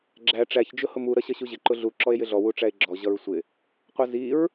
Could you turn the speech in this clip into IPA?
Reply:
ɡ͡ǁæ ʈ͡ʂæç d͡ʒʊhʊmu ɾʌɕʌɕuʑɪ ǃʊɮu ǁɔe̯jɪɮɔ wuʈ͡ʂæe̯ɡ͡ǁɔ ʑʌɹsʷɪ | qʷʌziɹ

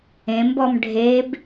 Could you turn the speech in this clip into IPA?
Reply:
ẽmbɔm ɖʱeb

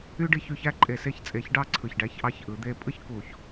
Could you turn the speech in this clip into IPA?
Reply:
y˥ɖi˥˧çy˥˧çæ˥ ǃʼe˧˩ se˥˧çt͡sʼe˧˩çɖɑ˥˧ ǀʰɯ˧˩çɖæ˥çʔɑ˥ç ʔɯ˩˧ d̪e˧pʼɯ˥ç ku˧˩ç

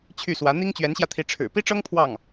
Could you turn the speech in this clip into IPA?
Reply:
t͡ɕʰy˥˩swä˧˥ n̪i˥ŋt͡ɕɥɛ˧˥nɕjä˧t̪ʰi˧˥ ʈ͡ʂʰɻ̩˨˩ pi˥ʈ͡ʂɤ˥ŋ pʰwɑ˥˩ŋ

